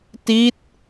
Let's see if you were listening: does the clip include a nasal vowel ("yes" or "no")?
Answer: no